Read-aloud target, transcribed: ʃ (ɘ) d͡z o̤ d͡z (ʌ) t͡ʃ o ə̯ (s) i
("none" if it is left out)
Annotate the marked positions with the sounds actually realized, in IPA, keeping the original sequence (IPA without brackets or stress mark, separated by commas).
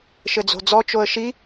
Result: ɘ, ɔ, ʃ